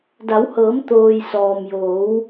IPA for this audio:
da˩˧whɤː˩˧m t̪oː˩j sɔː˩m joː˩˧w

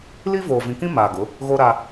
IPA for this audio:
li˦voː˨ vĩ˨kĩ˦ maː˨ɡʊ˨˦ | ɣoː˦ɾaː˦

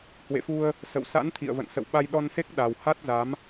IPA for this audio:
hwḛ˧˨fu˧ə̯ | sə̰˧˨wsa̰˧˥nt̪ʰḭ˧˨ə̯və̰˧˨n sə̰˧˨wɓa˧jɗɔ˧n se˦˥k̚ ɗa˨˩w ha˦˥t̚za˨˦m

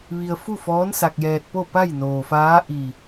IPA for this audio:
ʋi˧ə̯fu˥˨fɔː˧˥n sa˧k̚jɛː˧t̚po˥˨ pa˥˨jnoː˩faː˧˥ ʔi˧˩

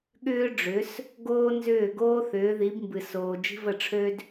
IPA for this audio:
ɠʏː˥ɖ͡ʐʏ˩˥s | ɡoː˥nzʏː˥˩ɡoː˥ θʏː˩˥ði˩˥bmbɨ˩soː˩ d͡ʒi̤˥və˥˩ʈ͡ʂʰø˥d

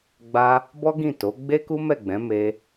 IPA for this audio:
ɡ͡ba˦ | bɔ˦ɡĩ˦˨to˨˦ ɡ͡be˦ku˦mɛ˦˨ɡ͡bɛ̃˨˦ me˦

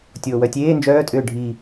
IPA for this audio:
tʲoːwœtʲeː nd͡ʒœː tʼʏːɖʱi

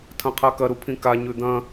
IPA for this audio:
tʰɐ̃qʰakɐ ɾupʰĩka ɲʉd̪ɐ̃

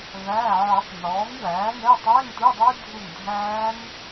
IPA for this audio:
væː˩˧˩ʕɔ˨˩˦tˤ nɔː˩˥ŋwæː˩˥nɛ˧˥˧ tˤɛː˧˥˧ŋtʷe˧˥˧dˤe˦˥ dʱu˦˨ŋdʱæː˦˥n

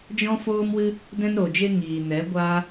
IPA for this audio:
d͡ʒɔ̃˦foː˦mwɨ˦ | dɛ̃˦nɾo˨d͡ʒe˦ ŋiː˨nɛ˨˦ ɡʷaː˦

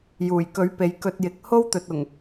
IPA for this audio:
juː˨˩jkɵ˨˥ɥ pe˨j kɵ˧t̚jɪ˨˥k̚ ho˥wt̪ɵ˨t̚ʊ˨˩ŋ

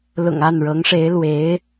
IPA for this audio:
lʊ̰˨˩ŋa˥˩nɻɤ˧˥ŋʂe˧˥ɪ̯ lwe˧˥ɪ̯

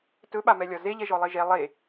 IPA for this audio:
tɵɓamɛlʲɒ zeʎɛʒɔ lˠeʒɛ lˠe

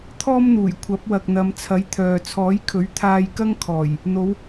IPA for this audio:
t̪ʰɔː˥mn̪uː˨˩j kʷʰɐ˨˥p̚wɐ˨k̚n̪ɐ˨˧m t͡sʰɐ˨˥jt̪ʰœː˨ t͡sʰɔː˨˥jkʰɵ˨˥ɥ t̪ʰaː˧jkɐ˥ŋkʰɔː˨˩j | n̪o˨˧w

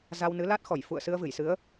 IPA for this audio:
za˧wnɨ˨˦la˦˥t̚xɔ˧˩j fṵ˧˨ə̯sɨ˧ə̯vɨ˧˩jsɨ˨˦ə̯

